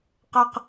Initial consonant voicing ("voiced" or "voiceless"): voiceless